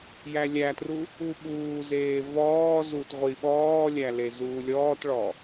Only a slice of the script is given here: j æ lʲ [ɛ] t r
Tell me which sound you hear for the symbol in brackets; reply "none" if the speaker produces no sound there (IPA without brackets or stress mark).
æ